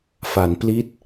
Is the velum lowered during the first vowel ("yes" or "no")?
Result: no